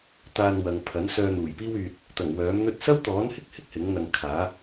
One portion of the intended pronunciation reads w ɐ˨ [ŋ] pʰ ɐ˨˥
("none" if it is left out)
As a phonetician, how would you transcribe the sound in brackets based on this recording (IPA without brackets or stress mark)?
ŋ